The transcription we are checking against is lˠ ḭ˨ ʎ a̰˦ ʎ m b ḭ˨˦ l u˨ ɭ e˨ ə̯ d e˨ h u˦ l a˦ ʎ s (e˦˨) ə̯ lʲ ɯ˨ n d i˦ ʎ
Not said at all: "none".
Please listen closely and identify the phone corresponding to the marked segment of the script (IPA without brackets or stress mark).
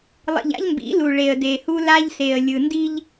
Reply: e˨